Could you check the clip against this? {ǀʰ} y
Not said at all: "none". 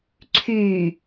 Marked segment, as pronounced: ǀʰ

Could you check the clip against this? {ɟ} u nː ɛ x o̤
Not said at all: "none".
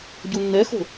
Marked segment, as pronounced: ɟ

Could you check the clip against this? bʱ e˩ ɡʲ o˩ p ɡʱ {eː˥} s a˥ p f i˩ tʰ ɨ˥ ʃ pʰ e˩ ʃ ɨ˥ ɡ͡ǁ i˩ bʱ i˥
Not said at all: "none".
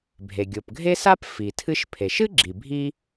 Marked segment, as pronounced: e˥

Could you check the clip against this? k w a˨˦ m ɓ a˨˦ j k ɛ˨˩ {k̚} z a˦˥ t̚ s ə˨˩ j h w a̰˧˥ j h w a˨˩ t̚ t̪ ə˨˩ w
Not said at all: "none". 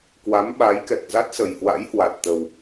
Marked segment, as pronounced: k̚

